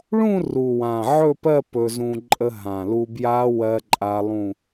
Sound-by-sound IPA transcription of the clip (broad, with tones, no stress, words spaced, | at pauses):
ɭũ˥˧ru˨˩wã˨˩ ʕɵ˥˧pɜ˥˧ pɵ˧zũ˧ ǃʼə˧ɦã˨˩ lu˧bja˦˥ wɜ˦˥ǃʼa˦˥lˠũ˥˧